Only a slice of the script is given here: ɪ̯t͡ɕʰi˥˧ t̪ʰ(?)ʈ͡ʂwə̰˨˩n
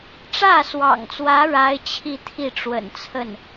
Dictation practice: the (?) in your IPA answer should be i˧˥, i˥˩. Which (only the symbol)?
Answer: i˥˩